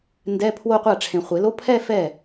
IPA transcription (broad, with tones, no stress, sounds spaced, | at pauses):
n d ɛ˧˥˧ pʰ w o˥˧ qʷ a˥˩ ʈ͡ʂʰ ẽ˨ χʷ e˨˩˦ l o˧˥˧ pʰ ɛ˥˧ f ɛ˥˩